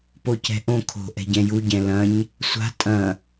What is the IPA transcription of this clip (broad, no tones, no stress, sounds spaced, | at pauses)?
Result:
p o c ɛ̤ ʔ õ kʰ o̤ ʔ ɛ̤ ɟ ɛ̃ j u ɟ ɛ̃ l ɐ̃ ɲ | sʷ a̤ tʼ ɐ̃